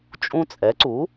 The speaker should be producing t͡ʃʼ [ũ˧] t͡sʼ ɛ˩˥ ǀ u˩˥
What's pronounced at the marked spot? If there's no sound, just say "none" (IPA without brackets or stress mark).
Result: ũ˧